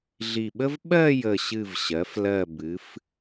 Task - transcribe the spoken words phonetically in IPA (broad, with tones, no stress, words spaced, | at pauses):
ɮi˧˩ɓə˥v ɓɜ˥˧ jə˧˩ɕɨ˧˩v ɕɜ˩˧f lɜ˧˩ bɨ˩˧f